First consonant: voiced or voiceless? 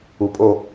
voiceless